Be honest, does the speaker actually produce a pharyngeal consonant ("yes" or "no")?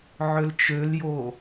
yes